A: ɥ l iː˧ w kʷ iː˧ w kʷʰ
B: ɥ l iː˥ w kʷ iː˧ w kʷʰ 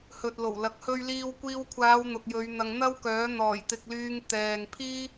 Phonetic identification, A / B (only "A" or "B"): A